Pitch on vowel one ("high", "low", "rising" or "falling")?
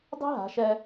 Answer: high